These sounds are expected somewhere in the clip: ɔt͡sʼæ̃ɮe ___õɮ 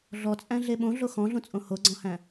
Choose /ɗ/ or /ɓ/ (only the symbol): ɓ